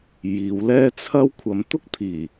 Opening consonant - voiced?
yes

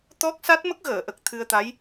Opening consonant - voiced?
no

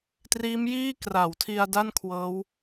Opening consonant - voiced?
no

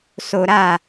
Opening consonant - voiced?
no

